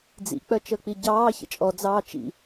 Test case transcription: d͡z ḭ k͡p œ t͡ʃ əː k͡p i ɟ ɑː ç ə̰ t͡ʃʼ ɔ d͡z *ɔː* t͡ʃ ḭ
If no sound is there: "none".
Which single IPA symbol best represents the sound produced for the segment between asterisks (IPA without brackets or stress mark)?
ɑː